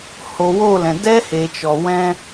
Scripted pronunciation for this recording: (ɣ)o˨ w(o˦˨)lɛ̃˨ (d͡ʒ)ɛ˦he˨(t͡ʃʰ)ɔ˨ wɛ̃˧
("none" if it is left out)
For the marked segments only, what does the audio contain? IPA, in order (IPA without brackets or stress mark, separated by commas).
h, o˦˨, d, t͡ʃ